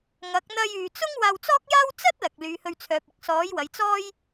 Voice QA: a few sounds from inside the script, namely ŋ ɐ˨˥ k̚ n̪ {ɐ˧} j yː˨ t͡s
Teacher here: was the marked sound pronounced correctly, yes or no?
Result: yes